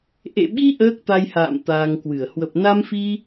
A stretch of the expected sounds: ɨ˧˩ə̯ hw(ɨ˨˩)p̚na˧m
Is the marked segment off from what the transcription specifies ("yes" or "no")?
yes